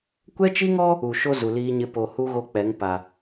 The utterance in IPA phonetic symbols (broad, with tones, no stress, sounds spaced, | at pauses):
kʷ ɛ˦ t͡ʃ i˦ ŋ ɔ˦ | u˨ ʃ o˦ z u˨ l iː˦ ɲ ɪ˦ p o˨ h u˦ ɣ o˦ k͡p ɛ˨˦ ŋ p a˨